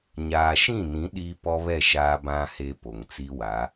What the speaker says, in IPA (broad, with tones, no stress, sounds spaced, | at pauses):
ɲ aː˨ ʃ ĩ˦˨ n ĩ˨˦ ɗ iː˦ p ɔ˦ β ɛ˦˨ ʃ aː˦ b ã˦ h e˦ p o˨ ŋ t͡s i˦ w a˨˦